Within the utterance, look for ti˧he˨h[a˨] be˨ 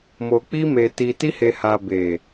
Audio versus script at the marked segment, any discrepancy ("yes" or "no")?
no